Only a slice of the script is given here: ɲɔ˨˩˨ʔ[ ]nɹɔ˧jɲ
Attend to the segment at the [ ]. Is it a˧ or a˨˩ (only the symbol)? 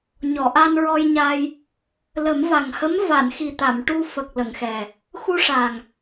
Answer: a˧